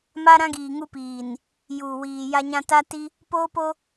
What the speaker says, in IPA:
m a˦ ɾ ã˦ ɡ iː˨ ŋ u˦ p iː˨ n | j uː˨ w iː˨ j a˦ ɲ ã˦ t a˦ t i˦ | p oː˦ p o˦

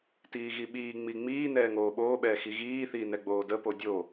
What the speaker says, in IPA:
t iː ɣ i ɓ iː ŋ͡m i ŋ͡m iː n ɛː ŋ oː ɓ oː ɓ ɛː x i ɣ iː θ iː n ɛ ɡ͡b oː d ə p o dʲ o

